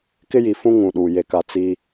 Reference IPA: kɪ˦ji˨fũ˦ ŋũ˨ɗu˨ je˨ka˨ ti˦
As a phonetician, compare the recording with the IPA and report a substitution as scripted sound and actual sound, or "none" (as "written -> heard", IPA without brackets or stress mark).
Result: t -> t͡s